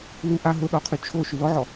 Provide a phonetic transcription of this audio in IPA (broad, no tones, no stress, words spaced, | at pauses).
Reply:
lu ʔa ɦʊ ɗɔqʰy t͡ʃʰo ʃylɔʕɔ